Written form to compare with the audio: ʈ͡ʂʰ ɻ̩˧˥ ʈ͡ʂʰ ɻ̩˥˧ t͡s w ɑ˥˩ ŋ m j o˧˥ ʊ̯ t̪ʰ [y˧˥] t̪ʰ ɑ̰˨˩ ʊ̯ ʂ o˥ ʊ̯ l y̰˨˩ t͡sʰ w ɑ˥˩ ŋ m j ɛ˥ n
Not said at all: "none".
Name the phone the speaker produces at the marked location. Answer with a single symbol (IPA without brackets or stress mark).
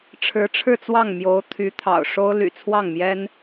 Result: y˧˥